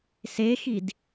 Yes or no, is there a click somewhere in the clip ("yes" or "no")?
no